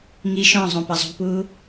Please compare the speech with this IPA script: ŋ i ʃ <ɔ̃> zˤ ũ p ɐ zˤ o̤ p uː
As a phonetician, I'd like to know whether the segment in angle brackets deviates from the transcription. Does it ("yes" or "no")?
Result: no